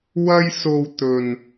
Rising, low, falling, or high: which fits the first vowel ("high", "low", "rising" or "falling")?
high